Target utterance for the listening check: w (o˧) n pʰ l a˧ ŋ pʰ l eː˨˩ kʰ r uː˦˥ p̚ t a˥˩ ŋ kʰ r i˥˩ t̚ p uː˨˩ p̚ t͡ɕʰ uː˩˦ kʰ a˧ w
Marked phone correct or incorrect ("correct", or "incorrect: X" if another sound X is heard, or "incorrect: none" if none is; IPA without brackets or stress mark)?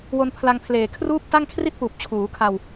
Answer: correct